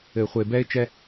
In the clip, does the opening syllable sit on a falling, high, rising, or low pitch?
low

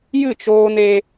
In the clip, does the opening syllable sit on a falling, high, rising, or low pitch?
falling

